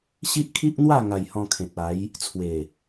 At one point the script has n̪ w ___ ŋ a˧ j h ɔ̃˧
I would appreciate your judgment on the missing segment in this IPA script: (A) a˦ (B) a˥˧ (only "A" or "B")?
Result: B